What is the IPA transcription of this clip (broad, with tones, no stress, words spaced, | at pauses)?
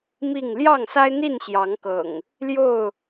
mi˥˨ŋ ljɑ˥˨ŋsa˦ɪ̯ n̪i˥˨n ɕjɑ˨˦ŋkɤ̰˨˩ŋ | ljo˥˨ʊ̯